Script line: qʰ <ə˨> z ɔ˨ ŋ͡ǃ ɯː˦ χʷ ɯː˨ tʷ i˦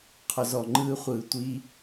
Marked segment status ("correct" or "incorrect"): incorrect